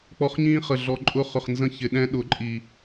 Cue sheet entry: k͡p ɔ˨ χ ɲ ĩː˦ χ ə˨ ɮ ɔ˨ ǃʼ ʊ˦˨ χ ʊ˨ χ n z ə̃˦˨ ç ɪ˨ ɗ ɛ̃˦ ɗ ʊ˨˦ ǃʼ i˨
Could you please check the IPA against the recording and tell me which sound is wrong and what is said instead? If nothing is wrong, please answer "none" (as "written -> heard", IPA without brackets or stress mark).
none